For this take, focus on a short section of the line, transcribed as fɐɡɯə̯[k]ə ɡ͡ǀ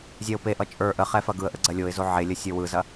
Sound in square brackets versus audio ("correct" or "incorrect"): incorrect